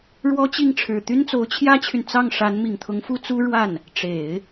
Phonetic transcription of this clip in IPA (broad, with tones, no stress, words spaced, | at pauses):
ɻwɔ˥t͡ɕi˥˩ŋʈ͡ʂʰɻ̩˨˩ t̪y˥nt͡so˧˥ʊ̯t͡ɕʰjä˥t͡ɕʰy˨n t͡sɑ˥˩ŋ ʂa˧˥n mi˨˩ŋt̪ʰʊ˧˥ŋfu˥ t͡su˥ɻwa˥˩n | ʈ͡ʂe˨˩˦ɪ̯